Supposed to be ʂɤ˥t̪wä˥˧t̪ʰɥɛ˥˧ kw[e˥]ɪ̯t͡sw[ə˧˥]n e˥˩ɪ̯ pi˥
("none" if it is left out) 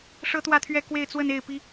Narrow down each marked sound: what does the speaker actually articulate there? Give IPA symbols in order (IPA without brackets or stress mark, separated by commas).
e˥˧, ə˥˧